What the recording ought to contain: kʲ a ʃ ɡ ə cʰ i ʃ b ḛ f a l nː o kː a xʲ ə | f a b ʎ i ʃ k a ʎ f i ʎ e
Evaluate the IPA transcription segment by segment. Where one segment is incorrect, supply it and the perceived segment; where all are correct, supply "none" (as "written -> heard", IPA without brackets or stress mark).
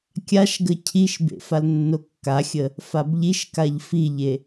none